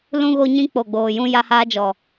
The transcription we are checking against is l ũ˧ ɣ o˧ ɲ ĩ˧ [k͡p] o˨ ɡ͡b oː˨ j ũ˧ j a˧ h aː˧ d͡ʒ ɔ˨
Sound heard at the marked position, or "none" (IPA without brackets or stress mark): k͡p